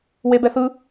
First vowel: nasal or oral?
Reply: oral